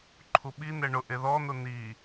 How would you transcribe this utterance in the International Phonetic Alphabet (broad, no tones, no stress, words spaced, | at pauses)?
ǃʰuɓin̪ɛ ɳʊ ʔeðɔn̪ʊ n̪i